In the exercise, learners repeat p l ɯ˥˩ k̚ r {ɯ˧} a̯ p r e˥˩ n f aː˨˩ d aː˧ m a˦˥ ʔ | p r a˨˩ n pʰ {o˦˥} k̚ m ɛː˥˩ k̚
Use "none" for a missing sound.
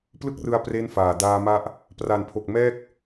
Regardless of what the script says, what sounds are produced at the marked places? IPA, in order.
ɯ˧, o˨˩

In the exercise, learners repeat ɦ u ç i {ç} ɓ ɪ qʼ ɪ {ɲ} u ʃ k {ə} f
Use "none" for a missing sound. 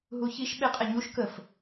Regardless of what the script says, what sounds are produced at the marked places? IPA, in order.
ʃ, ɲ, ə

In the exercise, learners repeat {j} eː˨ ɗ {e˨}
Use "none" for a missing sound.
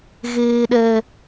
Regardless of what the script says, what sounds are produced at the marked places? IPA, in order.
ɣ, ɛ˨

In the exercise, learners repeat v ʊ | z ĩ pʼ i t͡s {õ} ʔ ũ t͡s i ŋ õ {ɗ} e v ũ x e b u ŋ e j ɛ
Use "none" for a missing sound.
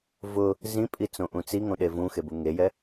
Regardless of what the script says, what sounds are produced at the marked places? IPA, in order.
õ, ɗ

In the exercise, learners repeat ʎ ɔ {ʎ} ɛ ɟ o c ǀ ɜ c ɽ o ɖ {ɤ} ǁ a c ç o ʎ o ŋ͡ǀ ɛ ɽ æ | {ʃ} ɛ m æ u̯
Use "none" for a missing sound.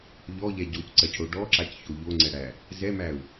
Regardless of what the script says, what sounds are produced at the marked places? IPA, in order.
ʎ, ɔ, z

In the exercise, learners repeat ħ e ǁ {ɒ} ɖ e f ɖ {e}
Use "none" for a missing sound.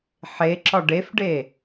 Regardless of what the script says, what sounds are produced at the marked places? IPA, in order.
ɒ, e

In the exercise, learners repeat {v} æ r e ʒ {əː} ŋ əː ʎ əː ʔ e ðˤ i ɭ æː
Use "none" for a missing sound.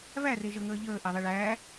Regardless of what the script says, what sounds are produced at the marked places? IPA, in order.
v, ə

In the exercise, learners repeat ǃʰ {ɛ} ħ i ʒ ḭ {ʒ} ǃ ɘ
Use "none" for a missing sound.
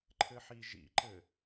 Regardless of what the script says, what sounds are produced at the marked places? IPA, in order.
ɘ, none

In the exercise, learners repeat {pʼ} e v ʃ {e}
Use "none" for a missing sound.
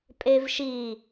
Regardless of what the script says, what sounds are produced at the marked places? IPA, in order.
pʼ, i

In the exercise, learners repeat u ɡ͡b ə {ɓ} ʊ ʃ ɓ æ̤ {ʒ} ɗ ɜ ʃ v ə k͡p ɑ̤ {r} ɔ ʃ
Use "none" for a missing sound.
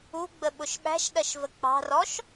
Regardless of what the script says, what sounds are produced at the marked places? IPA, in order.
ɓ, ʃ, r

